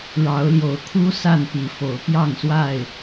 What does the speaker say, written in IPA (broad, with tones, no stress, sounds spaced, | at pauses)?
ɻ ɑ˨˦ ʊ̯ l j o˨˦ ʊ̯ kʰ u˦ s a˥˨ n p i˨˦ f o˨˦ ʊ̯ p j ɑ˥˨ ŋ s w a˥˨ ɪ̯